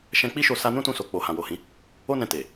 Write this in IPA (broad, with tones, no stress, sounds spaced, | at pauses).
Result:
ʃ ɛ̃˧ k͡p i˦ ʃ o˧ s a˧ n ũ˦ t ũ˧ s o˨ k͡p o˨ h ã˨ w o˨ h ĩ˨˦ | o˦ n ɛ̃˧ t e˨